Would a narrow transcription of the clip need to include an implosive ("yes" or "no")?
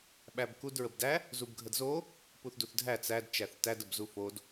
yes